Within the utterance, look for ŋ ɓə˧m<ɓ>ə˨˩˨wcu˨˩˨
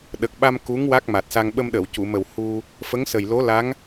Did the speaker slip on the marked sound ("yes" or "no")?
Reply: yes